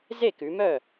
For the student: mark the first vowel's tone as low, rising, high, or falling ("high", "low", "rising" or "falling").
falling